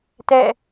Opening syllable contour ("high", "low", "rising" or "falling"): falling